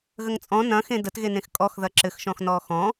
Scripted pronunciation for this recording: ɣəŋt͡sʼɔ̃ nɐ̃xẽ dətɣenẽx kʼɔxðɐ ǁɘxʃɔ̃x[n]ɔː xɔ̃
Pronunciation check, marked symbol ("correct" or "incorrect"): correct